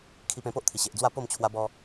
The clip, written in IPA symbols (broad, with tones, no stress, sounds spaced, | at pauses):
kʰ i˧ p ẽ˧ p o˦ ʔ t̪ʰ i˨˩ ɕ e˨ ʔ d͡z w a˥˧ p o˥˧ m t͡ɕʰ w a˧ b ɔ˧